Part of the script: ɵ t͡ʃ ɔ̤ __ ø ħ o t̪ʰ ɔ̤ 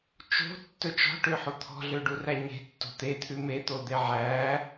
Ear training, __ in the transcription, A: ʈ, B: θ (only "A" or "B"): A